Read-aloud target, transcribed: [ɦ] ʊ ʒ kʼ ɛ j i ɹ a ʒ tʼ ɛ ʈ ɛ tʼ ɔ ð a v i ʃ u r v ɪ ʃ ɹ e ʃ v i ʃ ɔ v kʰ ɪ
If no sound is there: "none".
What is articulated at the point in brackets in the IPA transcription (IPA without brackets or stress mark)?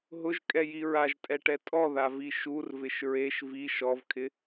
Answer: ɦ